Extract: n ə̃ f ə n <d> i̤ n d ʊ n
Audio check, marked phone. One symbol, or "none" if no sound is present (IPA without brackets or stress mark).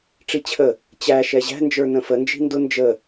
d͡ʒ